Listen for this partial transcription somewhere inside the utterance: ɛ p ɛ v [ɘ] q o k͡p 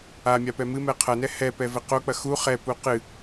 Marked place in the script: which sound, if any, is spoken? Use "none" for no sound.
ɘ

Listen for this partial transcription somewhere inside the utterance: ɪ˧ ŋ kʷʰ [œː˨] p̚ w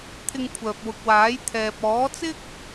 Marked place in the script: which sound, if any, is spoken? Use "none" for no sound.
œː˨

